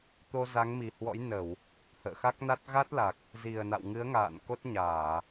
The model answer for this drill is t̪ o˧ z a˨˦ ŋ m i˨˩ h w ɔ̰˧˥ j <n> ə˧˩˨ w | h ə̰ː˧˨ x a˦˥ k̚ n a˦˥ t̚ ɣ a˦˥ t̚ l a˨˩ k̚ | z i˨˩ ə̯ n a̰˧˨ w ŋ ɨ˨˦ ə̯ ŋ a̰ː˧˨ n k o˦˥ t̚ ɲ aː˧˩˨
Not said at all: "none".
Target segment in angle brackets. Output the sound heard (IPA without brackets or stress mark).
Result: n